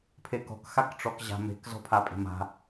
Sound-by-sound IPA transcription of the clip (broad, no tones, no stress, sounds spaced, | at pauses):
pʰ e k ɔ̤ k x a k ʈ͡ʂ ɔ k ʑ a̤ m e̤ k z ɔ̤ pʰ a pʼ e̤ m a̤